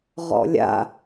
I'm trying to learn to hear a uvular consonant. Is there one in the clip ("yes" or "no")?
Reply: yes